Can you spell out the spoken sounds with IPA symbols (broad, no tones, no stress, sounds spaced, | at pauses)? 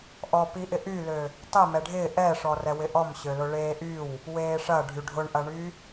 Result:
ʔ ɔ p i ʔ ɪ ʔ y l ø | tˤ ɪ m ɛ ɖʱ ɪː ʔ ɛ ʂ ɔ r ɛ w ɪ ʔ ɔ m ɕ ø l ʊ ɭ eː ʔ y w | w eː ʂ ɐ ɖʱ y ɖʱ ʊ ɳ ʔ ɐ ɳ y